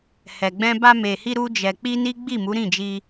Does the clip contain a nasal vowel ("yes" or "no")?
yes